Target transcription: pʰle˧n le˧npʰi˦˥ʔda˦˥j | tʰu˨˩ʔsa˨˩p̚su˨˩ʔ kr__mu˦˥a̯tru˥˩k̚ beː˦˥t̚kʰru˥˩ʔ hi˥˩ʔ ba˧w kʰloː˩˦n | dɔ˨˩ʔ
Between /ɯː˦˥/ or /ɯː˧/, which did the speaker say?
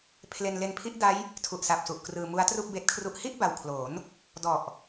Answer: ɯː˧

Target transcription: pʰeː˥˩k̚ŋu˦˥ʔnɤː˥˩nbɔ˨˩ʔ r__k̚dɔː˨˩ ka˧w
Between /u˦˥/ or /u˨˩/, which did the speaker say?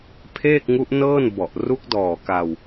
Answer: u˦˥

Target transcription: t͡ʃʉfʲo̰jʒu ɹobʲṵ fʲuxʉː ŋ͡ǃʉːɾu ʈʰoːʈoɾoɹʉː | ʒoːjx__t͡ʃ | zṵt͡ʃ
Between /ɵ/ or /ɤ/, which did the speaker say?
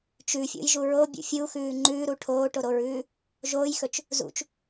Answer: ɵ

